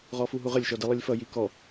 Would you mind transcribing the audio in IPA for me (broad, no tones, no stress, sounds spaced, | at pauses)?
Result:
ʁ ɔ f u ɦ u ʁ ə lʲ ʃ ɔ d i lˠ i lʲ f ʌ j i k ɔ